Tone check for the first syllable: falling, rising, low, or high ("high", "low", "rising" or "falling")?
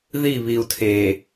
falling